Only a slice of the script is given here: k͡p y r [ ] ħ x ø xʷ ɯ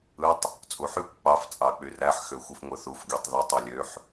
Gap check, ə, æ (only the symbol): æ